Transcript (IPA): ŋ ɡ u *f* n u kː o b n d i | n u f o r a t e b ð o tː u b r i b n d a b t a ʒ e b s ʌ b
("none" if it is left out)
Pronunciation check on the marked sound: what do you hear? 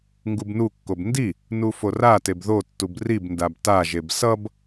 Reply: b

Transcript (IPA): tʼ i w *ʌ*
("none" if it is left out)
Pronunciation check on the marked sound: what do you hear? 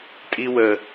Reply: ə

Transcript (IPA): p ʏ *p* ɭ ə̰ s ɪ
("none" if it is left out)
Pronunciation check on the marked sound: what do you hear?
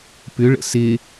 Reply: none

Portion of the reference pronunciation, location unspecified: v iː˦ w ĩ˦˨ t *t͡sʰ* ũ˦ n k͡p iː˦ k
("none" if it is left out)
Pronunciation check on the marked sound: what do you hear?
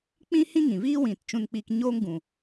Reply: t͡ʃ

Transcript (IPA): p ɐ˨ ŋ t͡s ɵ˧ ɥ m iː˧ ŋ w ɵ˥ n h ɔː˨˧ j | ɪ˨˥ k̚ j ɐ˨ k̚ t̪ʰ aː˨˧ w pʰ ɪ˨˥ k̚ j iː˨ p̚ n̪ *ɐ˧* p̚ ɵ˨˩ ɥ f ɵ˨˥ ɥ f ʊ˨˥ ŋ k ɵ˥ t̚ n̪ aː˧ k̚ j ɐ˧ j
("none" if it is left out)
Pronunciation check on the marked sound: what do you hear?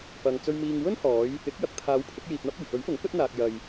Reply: ɐ˥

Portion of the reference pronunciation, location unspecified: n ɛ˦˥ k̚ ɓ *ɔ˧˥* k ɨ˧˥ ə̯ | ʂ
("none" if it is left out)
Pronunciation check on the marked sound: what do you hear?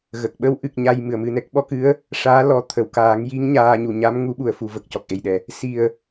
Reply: ɔ˧˥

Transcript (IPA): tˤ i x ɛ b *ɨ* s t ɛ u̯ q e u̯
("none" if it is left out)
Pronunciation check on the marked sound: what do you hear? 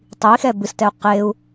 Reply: ɨ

